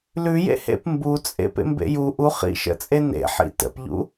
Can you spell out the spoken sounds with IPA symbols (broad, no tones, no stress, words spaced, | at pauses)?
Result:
lʉjḛhḛp mbut͡sʼḛ pḛmbḛju ʔuχḭʃə̰t͡sʼe nḛħḭ tə̰pʎṵ